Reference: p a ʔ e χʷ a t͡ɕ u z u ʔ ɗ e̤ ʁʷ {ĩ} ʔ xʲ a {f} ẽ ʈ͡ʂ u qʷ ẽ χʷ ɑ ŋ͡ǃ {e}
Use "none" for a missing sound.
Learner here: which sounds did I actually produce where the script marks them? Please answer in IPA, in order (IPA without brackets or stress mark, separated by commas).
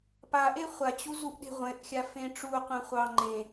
ẽ, f, ẽ